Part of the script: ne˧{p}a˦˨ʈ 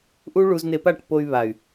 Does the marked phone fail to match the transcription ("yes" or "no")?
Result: no